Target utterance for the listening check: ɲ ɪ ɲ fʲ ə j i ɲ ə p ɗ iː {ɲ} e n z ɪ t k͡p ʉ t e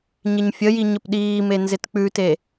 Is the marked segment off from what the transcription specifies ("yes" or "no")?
yes